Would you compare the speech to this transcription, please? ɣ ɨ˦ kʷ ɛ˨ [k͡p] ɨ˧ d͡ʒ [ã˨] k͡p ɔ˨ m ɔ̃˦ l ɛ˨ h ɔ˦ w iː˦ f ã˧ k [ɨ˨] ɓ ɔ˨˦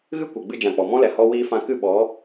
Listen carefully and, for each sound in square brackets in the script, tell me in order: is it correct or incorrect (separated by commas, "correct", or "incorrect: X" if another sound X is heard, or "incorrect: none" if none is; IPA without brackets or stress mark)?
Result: incorrect: ɡ͡b, correct, incorrect: ɨ˦˨